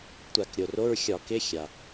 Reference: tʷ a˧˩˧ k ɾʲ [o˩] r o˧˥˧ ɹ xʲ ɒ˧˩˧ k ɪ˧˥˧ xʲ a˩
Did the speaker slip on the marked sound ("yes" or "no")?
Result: no